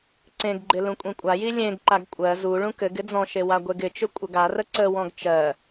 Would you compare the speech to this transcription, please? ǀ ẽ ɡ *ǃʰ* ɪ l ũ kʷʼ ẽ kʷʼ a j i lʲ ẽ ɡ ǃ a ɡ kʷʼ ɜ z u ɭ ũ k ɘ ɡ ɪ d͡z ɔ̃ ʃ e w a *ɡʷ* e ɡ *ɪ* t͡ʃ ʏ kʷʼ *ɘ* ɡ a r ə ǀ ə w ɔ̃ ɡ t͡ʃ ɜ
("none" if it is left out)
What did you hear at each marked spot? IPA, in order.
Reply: ɡ͡ǃ, ɡʷ, ɪ, ɘ

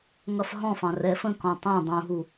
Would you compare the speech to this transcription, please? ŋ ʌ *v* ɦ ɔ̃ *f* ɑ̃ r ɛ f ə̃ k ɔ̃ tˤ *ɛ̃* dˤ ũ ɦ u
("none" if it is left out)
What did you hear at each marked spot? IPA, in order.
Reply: f, f, ɛ̃

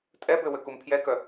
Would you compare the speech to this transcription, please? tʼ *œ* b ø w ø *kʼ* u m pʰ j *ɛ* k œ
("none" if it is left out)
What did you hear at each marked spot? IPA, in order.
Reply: ɛ, k, ɛ

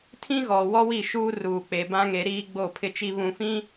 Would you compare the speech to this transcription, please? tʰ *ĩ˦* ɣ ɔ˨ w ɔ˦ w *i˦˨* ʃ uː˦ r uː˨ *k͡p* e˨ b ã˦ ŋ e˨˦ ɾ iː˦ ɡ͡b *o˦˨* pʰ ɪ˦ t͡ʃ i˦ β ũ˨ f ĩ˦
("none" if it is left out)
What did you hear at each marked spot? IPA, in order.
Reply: ĩ˦, i˦˨, k͡p, o˦˨

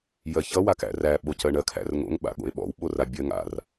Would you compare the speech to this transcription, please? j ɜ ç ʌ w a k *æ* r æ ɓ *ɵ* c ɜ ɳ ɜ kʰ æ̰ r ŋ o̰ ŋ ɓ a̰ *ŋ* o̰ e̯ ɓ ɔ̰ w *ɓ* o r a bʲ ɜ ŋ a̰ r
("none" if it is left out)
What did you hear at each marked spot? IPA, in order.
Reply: æ̰, o, ɠ, ɓ

